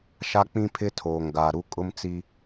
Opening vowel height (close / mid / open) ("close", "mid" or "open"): open